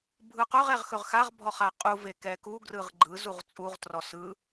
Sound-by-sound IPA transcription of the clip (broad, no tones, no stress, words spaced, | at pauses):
bʱɯqɵʁɛʁ xɵʁxaʁbʱɔ χaqʼu vekɛku ɡrɯʁɡ͡ǃɯ zuʁt͡sʼuʁ trɔsɯ